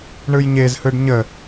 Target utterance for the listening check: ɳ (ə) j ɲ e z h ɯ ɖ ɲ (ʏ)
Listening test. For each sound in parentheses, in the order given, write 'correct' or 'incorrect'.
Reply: incorrect, incorrect

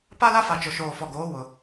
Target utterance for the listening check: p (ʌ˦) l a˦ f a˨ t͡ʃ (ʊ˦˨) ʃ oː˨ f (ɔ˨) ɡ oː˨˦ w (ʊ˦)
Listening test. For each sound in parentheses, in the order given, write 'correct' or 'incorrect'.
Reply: incorrect, incorrect, correct, incorrect

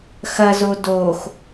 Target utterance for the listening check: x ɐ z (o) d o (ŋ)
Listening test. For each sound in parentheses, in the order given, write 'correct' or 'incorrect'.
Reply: correct, incorrect

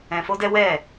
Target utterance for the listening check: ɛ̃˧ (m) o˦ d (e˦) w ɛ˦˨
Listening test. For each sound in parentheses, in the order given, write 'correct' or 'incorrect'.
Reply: incorrect, incorrect

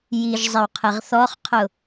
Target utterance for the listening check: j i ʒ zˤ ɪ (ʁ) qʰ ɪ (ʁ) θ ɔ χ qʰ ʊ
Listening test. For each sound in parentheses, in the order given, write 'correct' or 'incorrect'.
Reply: incorrect, correct

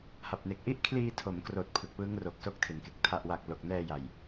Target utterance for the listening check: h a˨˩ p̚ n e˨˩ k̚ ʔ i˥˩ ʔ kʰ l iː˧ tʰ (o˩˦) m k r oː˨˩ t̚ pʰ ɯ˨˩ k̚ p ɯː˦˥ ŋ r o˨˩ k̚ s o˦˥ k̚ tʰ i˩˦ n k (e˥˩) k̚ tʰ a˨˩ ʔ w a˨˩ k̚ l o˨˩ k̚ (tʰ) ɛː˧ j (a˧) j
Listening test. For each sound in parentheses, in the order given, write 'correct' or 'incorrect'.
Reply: correct, incorrect, incorrect, incorrect

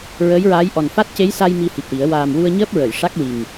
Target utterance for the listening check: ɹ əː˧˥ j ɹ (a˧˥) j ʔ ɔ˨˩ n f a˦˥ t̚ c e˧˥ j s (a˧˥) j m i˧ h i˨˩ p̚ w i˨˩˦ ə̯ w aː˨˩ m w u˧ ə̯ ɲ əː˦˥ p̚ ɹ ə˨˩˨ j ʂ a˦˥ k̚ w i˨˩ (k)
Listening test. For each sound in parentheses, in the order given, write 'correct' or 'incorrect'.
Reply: incorrect, incorrect, incorrect

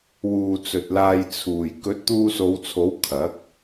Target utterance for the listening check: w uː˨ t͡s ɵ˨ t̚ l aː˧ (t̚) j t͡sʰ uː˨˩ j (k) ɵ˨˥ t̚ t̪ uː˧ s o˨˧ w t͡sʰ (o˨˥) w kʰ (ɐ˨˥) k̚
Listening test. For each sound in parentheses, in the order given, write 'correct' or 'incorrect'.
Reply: incorrect, correct, correct, correct

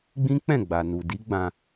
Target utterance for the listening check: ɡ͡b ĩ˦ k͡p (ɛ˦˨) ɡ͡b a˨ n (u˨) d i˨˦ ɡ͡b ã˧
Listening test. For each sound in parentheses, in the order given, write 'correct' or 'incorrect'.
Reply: incorrect, correct

